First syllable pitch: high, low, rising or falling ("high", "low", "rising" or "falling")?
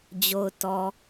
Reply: low